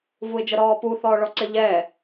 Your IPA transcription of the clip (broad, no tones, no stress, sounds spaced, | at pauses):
v u ɪ̯ d͡ʒ ə ɾ ɔː p u θ ɔː ɭ ɔ ǀ ɪ ʎ ɛ